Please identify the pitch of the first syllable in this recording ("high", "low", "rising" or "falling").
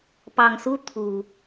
low